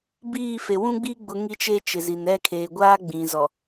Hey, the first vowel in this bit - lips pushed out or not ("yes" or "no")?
no